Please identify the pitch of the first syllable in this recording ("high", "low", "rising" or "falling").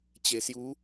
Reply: low